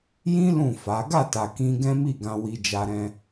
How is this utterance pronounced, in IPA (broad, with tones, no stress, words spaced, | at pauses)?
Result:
jĩ˦ lũ˦˨fa˨˦ ɡa˦˨ta˨ kĩ˧ ɡɛ̃˦mi˦˨ɡã˧ wi˧d͡ʒa˧ɾɛ̃˧